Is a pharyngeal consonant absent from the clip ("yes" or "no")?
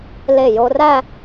yes